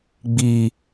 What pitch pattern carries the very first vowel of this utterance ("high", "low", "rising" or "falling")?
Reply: low